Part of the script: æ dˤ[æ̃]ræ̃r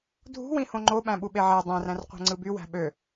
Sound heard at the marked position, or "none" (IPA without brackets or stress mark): æ̃